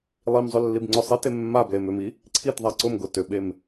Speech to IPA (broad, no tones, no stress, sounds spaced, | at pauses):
lˠ i m zˤ ʏ lː i b ŋ͡ǀ ʊ sˤ e t e mː a b l e m ʏ m i | ǀʰ i t ðˤ a ǀ ʊ m ɡ ʊ t ʏ ɓ e m